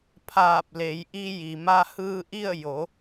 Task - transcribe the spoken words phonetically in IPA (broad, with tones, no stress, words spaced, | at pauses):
pʰaː˧˩p̚le˩˧jʔi˧ji˩ ma˧hɯː˧ʔi˥˨ə̯ jo˩˧